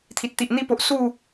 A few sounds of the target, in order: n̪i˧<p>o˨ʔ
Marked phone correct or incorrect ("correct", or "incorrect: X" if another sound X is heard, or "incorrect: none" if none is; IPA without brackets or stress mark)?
correct